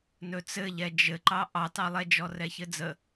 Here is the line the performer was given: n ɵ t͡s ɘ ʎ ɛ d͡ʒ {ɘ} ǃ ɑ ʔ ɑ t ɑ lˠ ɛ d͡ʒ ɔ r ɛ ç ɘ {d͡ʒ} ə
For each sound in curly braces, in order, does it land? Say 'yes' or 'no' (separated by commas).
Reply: yes, no